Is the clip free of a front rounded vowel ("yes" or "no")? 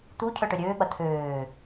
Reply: no